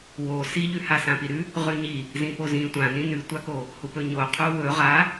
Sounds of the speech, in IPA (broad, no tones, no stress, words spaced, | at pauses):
wo siʎʉha sãpiɾʉ | ʁʉɲi | zĩpozĩ tʷãnĩ nʉtʷako | hupɵɲo qʰuwɵ ʁa